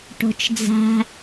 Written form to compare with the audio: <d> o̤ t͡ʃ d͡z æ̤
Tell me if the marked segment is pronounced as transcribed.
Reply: no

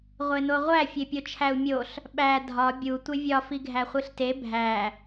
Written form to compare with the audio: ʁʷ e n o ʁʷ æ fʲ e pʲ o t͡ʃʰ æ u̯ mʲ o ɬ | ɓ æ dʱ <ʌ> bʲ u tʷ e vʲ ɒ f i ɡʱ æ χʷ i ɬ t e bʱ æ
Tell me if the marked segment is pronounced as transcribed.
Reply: no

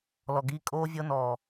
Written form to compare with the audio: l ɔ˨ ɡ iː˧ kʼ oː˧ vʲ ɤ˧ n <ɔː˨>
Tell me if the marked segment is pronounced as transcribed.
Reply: yes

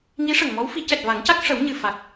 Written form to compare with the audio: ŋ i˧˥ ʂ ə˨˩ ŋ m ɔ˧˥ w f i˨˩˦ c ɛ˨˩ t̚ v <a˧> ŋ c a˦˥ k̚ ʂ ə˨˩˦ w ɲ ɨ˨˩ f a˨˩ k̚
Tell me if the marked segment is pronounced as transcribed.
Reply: no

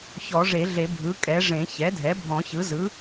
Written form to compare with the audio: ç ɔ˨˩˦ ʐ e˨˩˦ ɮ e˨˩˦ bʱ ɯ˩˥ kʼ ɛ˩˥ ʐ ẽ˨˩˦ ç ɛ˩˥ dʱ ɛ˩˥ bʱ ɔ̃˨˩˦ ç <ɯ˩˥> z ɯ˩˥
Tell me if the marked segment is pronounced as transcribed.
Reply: yes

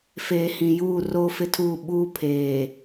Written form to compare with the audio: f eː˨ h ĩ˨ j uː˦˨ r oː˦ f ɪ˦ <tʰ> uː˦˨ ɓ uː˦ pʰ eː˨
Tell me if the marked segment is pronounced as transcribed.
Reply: yes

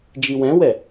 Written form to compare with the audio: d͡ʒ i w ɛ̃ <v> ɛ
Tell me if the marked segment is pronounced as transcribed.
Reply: no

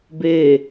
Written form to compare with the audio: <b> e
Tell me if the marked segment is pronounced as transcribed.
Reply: yes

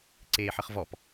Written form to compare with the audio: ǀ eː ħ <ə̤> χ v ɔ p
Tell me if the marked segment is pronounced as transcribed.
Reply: no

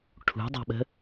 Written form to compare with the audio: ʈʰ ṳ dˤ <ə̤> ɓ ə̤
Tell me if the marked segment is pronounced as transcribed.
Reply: no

